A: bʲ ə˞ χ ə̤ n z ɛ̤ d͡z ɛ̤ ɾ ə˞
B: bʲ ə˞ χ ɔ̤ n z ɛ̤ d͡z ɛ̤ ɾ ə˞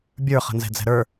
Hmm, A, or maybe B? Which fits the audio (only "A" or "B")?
A